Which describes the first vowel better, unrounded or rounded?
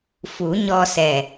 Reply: rounded